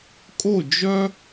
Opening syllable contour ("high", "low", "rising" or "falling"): falling